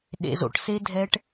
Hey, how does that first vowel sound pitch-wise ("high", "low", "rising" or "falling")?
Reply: low